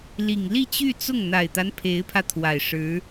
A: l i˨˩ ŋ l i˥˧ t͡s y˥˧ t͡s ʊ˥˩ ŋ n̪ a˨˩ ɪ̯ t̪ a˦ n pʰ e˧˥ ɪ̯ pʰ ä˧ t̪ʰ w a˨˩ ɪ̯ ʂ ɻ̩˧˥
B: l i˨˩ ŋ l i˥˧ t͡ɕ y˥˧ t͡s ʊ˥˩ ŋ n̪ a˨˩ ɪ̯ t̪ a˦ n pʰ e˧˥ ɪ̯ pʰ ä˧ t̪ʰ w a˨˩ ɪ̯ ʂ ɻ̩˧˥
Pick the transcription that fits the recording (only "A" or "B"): B